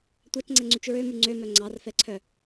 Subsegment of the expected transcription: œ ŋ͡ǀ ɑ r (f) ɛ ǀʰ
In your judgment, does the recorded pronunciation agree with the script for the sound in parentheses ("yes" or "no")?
yes